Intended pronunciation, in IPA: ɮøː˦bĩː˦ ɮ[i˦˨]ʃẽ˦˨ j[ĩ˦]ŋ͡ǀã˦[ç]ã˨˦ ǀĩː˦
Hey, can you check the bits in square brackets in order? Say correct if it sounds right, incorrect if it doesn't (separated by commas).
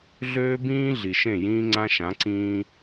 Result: incorrect, incorrect, incorrect